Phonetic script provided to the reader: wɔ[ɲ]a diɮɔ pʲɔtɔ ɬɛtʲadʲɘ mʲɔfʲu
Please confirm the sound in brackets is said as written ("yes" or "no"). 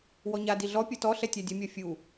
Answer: yes